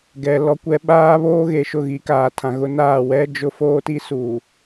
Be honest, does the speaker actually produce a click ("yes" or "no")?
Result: no